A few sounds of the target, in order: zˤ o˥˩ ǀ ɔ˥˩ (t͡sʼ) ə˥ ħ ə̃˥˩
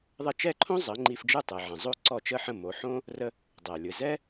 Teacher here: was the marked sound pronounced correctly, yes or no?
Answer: no